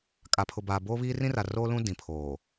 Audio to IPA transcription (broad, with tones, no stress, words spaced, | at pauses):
kʼa˨pʰʊ˨baː˨ boː˦βiː˦rĩ˦ra˨ ro˦lũ˦ dĩ˨pʰoː˨